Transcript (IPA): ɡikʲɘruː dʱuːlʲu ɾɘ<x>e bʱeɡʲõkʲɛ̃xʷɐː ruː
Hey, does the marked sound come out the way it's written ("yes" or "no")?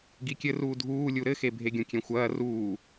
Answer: yes